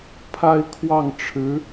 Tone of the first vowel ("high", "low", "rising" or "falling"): high